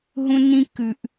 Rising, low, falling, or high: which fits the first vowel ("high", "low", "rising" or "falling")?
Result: high